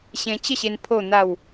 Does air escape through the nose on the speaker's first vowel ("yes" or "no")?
yes